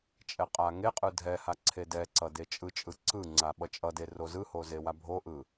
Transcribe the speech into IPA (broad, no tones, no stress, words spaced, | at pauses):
t͡ʃʼɛqʼaŋeqʼɯ dʱɛha ǀʰedɛǀʌ det͡ʃʼɯt͡ʃʼɯ ǀɯ ŋ͡ǀaɓʌt͡ʃʼʌde rozɯho zewabʱoʔɯ